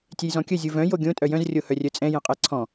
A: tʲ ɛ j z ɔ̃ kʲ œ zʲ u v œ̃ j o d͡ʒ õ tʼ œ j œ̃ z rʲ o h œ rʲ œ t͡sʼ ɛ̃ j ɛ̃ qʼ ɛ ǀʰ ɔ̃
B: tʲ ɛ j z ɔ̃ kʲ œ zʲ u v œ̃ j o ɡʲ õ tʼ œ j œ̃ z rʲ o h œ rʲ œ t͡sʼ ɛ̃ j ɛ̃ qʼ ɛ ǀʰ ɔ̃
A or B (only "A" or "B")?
B